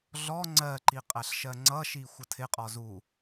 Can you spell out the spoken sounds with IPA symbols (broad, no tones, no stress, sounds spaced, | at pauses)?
ɮ ɔ ŋ͡ǀ ɜ ǃ i qʼ æ ɬ ʃ ɜ ŋ͡ǀ ʌ ʃ i xʷ ʌ tʰ ɪ qʼ ɔ z u